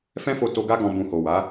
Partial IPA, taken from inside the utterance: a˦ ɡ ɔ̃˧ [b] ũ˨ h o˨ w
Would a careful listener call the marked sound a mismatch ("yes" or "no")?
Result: no